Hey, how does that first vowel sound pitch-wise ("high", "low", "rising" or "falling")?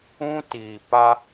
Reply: high